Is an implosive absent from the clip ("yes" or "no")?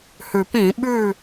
no